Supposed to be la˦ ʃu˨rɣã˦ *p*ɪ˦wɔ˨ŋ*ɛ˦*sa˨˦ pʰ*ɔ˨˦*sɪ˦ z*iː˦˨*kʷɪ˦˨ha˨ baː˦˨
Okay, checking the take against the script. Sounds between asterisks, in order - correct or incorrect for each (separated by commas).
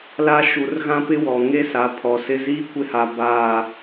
correct, incorrect, incorrect, incorrect